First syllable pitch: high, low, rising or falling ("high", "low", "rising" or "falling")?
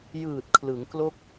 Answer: low